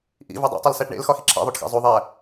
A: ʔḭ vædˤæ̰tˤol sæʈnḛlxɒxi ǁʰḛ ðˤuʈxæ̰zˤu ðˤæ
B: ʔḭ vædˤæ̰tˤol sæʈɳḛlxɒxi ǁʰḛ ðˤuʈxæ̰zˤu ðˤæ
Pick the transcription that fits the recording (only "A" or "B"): B